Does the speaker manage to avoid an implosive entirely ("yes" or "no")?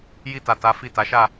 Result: yes